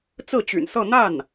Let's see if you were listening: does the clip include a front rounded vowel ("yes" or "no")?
yes